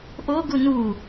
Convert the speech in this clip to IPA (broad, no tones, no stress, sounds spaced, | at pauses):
ʔ o ɡ u n u